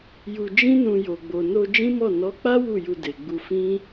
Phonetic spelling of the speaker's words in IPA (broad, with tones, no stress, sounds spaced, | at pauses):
j u˧ d͡ʒ ĩ˦ n ũ˧ j o˨ ɡ͡b o˨ n o˧ d͡ʒ ĩ˦ m ɔ˦˨ n ɔ˨˦ k͡p a˦ w u˦˨ j u˧ d e˨ ɡ͡b u˧ f ĩ˦